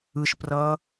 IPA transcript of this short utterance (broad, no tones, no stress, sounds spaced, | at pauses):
ɯ ʃ p r ʌː